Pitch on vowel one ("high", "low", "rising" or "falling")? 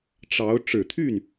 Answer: rising